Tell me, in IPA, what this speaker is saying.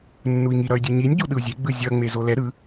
nː u i̯ ŋ i ɾ ʌ y̯ dʲ u ɲ i nʲ ɟ u ɗ ɯ u̯ zʲ e ɡ͡b ɯ zʲ ʌ ŋ͡m e z o l ɛ ɾ ɯ

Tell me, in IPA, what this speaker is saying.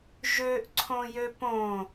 ʒ ø ʔ ǀʰ õ j ø p õ

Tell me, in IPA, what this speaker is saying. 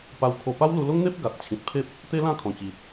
p a˧ w kʰ o˧ p a˦ w l u˧ l o˦ ŋ n̪ e˦ p̚ ɡ a˨ t̚ t͡ɕʰ ĩ˨ t̚ pʰ e˦ p̚ | t̪ e˦ l ã˥˧ kʰ ɔ̃˨˩ t͡ɕ i˨ t̚

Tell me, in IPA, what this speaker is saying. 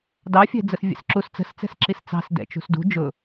d ɑ fʲ ɛ̤ d͡z ə s vʲ ɛ̰ s ǁ u s t͡s ə̤ s t͡s ɛ̤ s ǁ i s t͡s ɑ̤ s d ɛ̰ t͡ʃ ṳ s d ṳ d͡ʒ ʊ

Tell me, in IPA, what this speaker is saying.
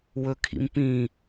w ɵ kʰ ḭ m p ĩ

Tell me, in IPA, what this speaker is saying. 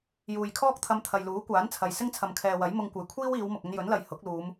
j uː˨ j kʰ ɔː˥ k̚ t̪ʰ ɐ˧ m t̪ʰ ɐ˨ j l uː˨˥ kʷ aː˨˥ n t͡sʰ ɐ˨ j s ɪ˥ ŋ t͡sʰ ɐ˨ m kʰ ɛː˨ w ɐ˨˥ j m ʊ˧ ŋ kʷ ɐ˨ j kʷʰ iː˥ w iː˨˧ w m ʊ˨ k̚ ɵ˧ n j ɵ˨˥ n l ɐ˨ j h ʊ˨˥ k̚ l uː˨˧ m

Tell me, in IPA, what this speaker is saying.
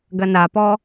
ɡ ɐ n a p ɔ

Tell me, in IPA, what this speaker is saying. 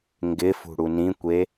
ŋ ɡ ɪ f ṳ ɽ u n ĩ kʷ e

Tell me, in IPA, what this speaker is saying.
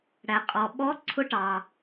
ɽ æ˨ qʼ ɔ˨ ɓ ɔ˧˥ ǀʰ ʊ˧˥ ʈ ɑ˨

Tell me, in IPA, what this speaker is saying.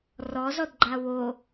r ɔ z ɔ d ɡ͡ǃ a w o

